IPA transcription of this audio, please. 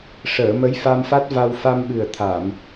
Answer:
ʂəː˨˩˨ mə˧˥jfa˧mfa˦˥t̚va˧w fa˧mɓɨ˨˩ə̯t̪ʰa˨˩˨m

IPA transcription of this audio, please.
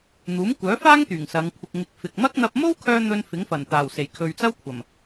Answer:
n̪uː˨˥mkʷœː˨˥faː˥ŋt̪yː˨˩ŋ sɐ˨˧ŋkʷʰɪ˧k̚ŋɪ˧k̚ fɪ˨k̚ mɐ˥k̚n̪ɐ˧p̚ mo˥wkʰœː˧ n̪ɵ˧n fɪ˨˥ŋfɐ˨˩nt̪aː˨˩wse˨˩j kʰɵ˨ɥt͡sɐ˥wkʷʰɐ˨˩m

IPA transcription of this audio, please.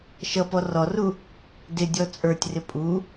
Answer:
ʃʌpɔ rɔru | dɪ dʲɔt͡sʼə˞tʲrɪ pʼu

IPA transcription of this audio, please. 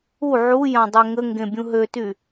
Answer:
u ʕujã dˤøŋəŋɡẽ bʲũɦøty

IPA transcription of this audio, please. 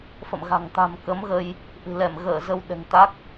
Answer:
fə̰˧˨mɣa̤˨˩ŋ t̪a̤˨˩m kə˨˦mɣə˧j | ʔɨ̤˨˩lɛ˧˩mɣəː˧˩ zə˧wɗɛ̤˨˩ŋt̪a˦˥k̚

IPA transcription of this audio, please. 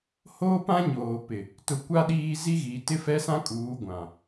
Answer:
hoː˦pã˦ɲoː˨pɪ˨ | tʊ˨kʷa˦ ɗiː˦ zi˦ɣiː˨ tɪ˦fɛ˦sã˦ kʼuː˨˦ɡʷã˨

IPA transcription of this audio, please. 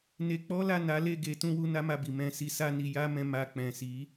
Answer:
ne˧k͡pɔ˦la˦˨ na˨˦le˦˨ ɡe˨˦ tũ˦ wu˦na˦ma˦˨bi˨ mɛ̃˧ si˧sa˦ ni˧ ja˦mɛ̃˧ ma˧ k͡pɛ̃˨si˨˦

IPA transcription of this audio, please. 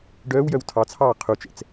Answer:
ɖœːw jœwtʰɑt͡sʰɑː qʰut͡ʃɛ̰t͡s

